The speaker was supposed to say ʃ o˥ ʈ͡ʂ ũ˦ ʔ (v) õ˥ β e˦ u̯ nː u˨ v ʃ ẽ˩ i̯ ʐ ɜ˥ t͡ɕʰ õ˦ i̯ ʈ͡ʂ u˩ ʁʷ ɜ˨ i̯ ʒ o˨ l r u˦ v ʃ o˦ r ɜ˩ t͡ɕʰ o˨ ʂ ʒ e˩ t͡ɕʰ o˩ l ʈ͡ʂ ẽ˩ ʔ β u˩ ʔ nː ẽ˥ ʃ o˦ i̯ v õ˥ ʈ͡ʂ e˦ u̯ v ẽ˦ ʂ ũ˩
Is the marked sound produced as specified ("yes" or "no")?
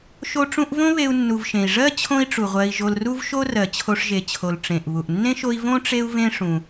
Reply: yes